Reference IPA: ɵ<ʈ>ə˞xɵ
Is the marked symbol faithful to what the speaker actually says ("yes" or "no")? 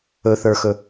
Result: no